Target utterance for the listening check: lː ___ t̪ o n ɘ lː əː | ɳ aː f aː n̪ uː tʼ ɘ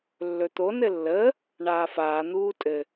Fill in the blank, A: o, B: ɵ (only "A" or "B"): B